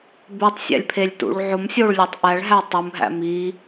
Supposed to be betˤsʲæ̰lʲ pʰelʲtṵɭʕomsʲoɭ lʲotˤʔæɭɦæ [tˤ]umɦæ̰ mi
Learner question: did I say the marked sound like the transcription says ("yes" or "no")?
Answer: yes